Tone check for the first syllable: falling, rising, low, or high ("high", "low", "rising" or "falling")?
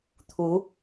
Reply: rising